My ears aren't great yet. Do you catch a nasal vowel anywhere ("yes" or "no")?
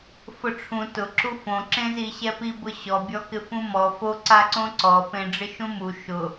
yes